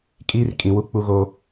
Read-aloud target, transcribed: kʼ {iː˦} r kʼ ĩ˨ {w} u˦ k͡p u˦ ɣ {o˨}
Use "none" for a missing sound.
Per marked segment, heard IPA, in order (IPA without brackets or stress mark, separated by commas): iː˦, w, o˦